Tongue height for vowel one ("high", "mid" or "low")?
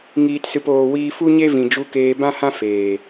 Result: high